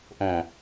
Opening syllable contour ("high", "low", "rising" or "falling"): low